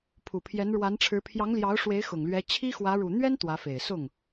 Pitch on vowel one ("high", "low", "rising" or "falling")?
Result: low